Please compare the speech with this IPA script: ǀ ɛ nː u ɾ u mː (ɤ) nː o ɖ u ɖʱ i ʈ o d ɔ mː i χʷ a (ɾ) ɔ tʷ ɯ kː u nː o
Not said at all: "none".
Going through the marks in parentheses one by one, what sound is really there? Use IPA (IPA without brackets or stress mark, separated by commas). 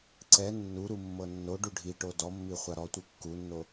ɤ, ɾ